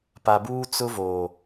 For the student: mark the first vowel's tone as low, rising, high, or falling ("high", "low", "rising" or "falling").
low